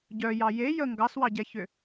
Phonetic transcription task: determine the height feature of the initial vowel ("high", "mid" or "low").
mid